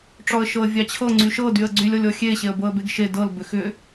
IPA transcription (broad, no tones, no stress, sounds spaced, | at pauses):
ʈ͡ʂ ɔ ə̯ ʃ ɤ ə̯ vʲ ɑ t͡ɕʰ ɤ ŋ͡ǀ y ʃ ɤ d y ə̯ ɡ͡ǀ y lʲ ɔ lʲ ɔ xʲ e ɕ e ə̯ b ɤ ə̯ b e ɡ ʃ e d ɤ l b ʏ x ʏ